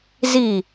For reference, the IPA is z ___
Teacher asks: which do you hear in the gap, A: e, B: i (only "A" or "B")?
B